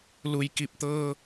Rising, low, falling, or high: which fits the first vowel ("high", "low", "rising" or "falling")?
low